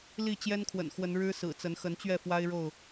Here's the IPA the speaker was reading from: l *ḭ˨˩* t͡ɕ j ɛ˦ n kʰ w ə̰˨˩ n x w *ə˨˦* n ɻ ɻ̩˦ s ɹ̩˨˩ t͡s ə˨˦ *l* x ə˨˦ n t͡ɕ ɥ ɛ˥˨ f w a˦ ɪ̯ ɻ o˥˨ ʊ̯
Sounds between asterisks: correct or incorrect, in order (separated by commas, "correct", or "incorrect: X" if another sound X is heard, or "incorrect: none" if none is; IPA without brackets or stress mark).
incorrect: i˥˨, correct, incorrect: n